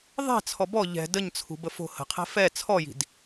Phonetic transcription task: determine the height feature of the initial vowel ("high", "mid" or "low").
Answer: mid